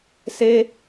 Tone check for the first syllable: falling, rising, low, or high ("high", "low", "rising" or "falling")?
high